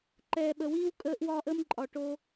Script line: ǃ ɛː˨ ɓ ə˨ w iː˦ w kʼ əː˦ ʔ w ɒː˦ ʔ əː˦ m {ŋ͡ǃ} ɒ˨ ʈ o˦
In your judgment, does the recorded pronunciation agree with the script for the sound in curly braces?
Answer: no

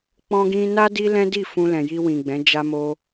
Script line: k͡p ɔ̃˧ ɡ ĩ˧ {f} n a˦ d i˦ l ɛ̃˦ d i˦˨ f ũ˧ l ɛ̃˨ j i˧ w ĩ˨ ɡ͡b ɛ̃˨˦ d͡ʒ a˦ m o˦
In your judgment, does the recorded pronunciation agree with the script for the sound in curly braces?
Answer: no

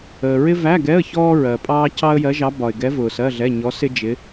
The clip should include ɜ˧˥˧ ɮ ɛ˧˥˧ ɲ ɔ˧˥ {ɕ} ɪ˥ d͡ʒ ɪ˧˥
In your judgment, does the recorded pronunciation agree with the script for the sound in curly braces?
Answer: no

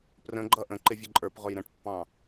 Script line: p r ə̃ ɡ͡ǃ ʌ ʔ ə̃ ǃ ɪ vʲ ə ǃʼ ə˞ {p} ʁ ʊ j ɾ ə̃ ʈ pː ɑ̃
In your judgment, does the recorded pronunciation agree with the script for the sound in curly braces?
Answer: yes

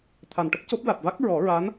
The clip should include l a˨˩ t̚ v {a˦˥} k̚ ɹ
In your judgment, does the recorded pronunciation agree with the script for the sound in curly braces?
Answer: yes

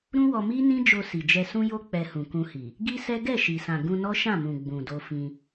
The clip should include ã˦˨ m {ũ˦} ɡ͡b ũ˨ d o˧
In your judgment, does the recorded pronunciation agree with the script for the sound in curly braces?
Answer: no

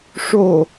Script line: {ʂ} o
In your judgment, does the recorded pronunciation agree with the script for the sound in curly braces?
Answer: yes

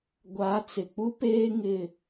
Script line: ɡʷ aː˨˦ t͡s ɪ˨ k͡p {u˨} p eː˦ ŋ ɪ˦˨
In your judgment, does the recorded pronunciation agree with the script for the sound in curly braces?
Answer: no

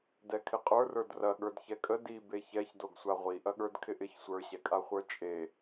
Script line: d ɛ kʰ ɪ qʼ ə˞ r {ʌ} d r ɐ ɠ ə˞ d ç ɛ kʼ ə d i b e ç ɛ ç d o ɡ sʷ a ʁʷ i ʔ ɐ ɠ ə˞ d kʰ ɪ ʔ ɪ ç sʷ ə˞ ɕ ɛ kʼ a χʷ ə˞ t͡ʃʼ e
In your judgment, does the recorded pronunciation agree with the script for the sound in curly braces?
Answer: no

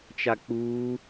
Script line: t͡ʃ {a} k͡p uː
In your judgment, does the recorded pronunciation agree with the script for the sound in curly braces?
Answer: yes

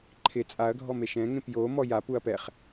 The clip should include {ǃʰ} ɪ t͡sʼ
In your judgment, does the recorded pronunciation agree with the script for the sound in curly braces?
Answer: yes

